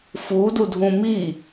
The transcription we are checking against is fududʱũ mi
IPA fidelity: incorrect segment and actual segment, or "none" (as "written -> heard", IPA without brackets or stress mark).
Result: none